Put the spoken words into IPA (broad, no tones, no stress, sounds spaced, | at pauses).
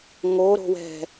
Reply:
ŋ o ɾ o̤ w ɛ̤